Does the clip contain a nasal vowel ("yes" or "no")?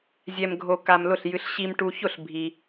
no